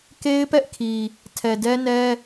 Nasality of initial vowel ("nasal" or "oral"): oral